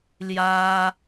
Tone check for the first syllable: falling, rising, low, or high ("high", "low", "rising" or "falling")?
high